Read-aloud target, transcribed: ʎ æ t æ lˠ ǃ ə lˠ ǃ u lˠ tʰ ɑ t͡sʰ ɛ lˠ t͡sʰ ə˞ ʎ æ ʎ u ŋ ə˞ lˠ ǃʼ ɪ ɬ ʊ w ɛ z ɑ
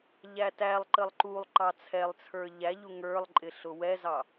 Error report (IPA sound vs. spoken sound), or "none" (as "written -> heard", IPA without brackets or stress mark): tʰ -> ǃ